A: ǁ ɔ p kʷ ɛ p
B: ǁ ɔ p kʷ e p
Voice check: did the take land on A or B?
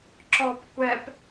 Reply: A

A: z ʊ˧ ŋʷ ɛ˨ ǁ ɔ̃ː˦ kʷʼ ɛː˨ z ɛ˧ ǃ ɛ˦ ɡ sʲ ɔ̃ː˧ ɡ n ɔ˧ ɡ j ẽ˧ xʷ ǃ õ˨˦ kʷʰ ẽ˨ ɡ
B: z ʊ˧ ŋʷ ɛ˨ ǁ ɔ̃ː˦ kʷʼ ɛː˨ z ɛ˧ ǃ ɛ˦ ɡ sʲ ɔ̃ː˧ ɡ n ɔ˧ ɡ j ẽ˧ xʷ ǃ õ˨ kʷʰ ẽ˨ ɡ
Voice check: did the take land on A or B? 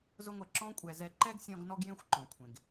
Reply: B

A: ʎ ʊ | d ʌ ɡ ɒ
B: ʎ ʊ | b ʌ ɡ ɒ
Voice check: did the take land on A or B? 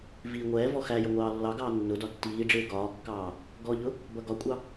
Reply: B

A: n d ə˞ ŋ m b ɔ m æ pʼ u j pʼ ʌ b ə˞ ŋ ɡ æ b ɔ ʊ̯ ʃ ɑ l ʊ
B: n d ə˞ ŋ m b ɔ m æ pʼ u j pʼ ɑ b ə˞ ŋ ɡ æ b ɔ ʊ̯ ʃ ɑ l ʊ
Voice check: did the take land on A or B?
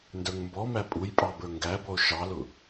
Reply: B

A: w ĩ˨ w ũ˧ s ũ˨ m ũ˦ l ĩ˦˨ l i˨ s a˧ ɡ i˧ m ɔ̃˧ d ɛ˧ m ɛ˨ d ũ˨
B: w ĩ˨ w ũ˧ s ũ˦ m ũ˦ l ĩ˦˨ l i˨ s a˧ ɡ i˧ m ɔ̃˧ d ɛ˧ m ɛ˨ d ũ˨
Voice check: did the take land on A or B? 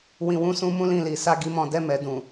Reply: B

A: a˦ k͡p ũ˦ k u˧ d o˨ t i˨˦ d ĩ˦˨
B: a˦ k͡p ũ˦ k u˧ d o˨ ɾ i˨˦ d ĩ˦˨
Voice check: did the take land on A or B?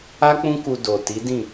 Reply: A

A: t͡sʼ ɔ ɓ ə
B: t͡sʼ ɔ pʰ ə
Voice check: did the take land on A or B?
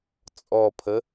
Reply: B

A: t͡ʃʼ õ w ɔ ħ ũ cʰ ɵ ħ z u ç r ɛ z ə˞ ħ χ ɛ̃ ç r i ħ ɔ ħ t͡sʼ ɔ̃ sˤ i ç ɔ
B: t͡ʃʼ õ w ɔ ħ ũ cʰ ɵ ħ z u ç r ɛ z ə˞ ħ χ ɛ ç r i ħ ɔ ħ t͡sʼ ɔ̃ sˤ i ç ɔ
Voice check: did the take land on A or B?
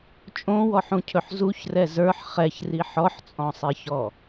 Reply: B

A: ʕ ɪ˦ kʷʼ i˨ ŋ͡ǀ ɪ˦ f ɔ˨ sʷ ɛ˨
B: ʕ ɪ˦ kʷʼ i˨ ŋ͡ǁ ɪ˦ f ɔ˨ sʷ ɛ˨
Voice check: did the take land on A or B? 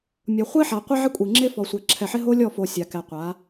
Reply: B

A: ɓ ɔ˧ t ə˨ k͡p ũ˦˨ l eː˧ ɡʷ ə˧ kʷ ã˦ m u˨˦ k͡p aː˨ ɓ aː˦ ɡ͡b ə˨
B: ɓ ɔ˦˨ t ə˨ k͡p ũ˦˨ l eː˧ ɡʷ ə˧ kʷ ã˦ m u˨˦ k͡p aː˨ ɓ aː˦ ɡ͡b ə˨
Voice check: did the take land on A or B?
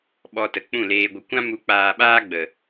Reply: A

